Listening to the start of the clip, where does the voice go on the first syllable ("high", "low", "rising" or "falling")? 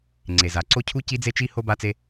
low